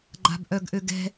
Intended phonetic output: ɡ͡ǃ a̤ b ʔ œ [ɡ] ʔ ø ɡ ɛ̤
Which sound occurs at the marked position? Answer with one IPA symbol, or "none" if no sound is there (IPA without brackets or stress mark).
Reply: ɡ